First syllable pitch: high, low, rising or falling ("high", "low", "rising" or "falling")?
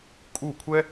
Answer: falling